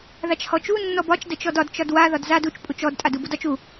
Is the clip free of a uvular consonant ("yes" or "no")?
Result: yes